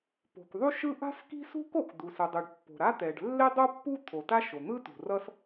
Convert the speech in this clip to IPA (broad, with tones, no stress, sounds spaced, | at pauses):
p o̤˩ k ðˤ u˥ ʃ ɯ˥ ʔ a̤˥ s k i̤˥ s ṳ˥ k o˩ k d̪ u˩ s ɯ˩ dˤ ɯ˩ ɖ pː o̤˩ ɾ a˥ t̪ ɛ˩ ɖ lː e˥ dˤ o˥ pː u˥ t̪ʰ o˩ t a˥ ʃ o˩ n̪ ɯ˥ t ṳ˩ r ʌ˥ s